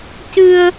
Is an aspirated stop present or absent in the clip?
absent